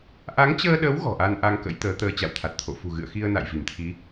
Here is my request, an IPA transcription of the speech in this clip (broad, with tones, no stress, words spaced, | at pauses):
ʔa˨˦ŋt͡ɕəː˧ɗə˨˦w ɣɔ̤˨˩ʔa˧n ʔa˧ŋkə̰˧˥jt̪əː˨˦t̪əː˧ t͡ɕa̰˧˨wt̪ʰa˨˩t̚t̪ʰo̰˧˨ fṳ˨˩ɣɨ̰˧˨ə̯xi˧ə̯ na̰˧˨jvi˧˩mt̪ʰi˨˦